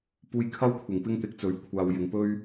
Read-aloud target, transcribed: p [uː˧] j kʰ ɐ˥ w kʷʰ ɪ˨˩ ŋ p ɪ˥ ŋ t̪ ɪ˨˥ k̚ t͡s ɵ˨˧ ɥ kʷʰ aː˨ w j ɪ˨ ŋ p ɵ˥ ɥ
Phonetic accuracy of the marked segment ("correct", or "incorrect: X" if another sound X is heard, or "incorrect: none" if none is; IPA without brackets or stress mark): correct